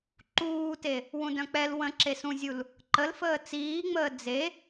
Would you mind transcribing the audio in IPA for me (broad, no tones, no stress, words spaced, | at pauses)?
ǃuːte | wũdœ̃k͡pɛl wə̃ ǁesũzʲul | ǃəlfəː t͡siːŋ͡məː d͡ze